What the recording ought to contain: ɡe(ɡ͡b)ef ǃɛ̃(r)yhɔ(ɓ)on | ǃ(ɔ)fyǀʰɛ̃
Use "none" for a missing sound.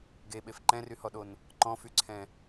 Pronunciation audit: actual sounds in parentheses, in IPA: ɓ, r, ɗ, ɔ̃

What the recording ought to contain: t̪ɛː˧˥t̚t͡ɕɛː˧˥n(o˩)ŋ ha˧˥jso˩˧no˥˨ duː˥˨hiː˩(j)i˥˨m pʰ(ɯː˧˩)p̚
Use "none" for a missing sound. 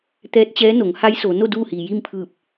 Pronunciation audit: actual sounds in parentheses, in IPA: o˩˧, j, ɯː˧˩

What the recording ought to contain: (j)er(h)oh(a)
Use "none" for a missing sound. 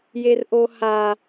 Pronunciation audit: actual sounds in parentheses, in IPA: j, ʔ, a

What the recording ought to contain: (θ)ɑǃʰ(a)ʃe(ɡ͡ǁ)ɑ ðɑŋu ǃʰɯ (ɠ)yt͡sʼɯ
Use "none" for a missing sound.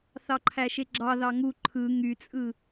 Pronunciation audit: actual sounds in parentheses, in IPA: θ, æ, ɡ͡ǁ, ŋ

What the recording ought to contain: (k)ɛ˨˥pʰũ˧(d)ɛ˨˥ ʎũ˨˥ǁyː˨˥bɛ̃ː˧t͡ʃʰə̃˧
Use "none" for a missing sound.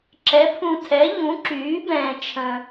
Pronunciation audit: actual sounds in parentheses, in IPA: ǁ, tʰ

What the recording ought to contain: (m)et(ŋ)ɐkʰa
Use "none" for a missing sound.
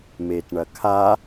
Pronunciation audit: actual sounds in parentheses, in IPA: m, ɳ

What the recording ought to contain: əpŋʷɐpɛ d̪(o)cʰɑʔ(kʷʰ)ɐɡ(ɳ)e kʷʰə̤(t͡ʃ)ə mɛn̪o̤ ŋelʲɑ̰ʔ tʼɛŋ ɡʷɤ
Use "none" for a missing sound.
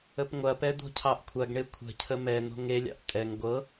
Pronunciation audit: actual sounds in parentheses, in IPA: o̤, kʷʰ, ɳ, cʰ

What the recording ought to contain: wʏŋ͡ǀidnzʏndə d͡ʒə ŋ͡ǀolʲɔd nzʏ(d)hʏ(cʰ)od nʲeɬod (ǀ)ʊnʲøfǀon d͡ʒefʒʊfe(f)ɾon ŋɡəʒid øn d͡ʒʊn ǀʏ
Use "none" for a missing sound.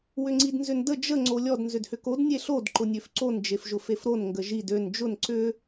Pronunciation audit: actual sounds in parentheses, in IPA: d, k, ǃ, f

